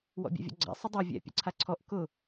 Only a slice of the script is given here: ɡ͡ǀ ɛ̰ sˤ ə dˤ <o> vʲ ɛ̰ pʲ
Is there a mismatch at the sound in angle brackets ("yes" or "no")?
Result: yes